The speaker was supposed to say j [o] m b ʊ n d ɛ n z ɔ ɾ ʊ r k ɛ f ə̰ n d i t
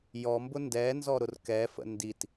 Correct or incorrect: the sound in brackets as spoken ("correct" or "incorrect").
incorrect